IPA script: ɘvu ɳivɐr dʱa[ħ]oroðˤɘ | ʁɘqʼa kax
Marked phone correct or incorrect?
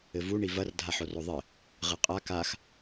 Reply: correct